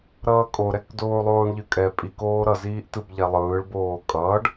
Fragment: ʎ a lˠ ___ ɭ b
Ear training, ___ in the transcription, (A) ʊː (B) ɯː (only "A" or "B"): B